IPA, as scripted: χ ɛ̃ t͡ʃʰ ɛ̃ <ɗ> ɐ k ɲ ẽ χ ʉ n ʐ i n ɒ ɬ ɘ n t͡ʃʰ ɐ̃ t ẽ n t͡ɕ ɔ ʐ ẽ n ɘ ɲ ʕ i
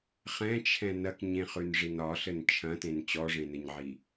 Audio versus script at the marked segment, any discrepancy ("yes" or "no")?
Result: yes